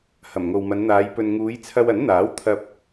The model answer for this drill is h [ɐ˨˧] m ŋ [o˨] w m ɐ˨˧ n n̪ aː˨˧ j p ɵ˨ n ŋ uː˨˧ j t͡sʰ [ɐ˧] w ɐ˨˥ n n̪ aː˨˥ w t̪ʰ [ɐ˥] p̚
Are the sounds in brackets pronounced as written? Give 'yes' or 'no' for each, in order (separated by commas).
no, yes, yes, no